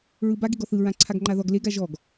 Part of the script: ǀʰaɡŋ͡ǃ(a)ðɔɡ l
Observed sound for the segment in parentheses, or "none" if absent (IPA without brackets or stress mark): a